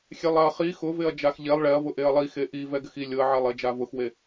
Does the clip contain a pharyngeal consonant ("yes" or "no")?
yes